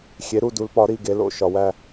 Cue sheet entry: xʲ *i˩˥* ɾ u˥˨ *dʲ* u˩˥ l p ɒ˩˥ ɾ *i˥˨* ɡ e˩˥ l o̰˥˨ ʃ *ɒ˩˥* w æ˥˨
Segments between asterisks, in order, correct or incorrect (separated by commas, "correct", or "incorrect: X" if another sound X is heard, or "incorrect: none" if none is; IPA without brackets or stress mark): incorrect: e˩˥, incorrect: d, correct, incorrect: ɒ˨